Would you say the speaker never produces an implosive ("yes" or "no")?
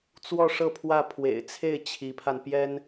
yes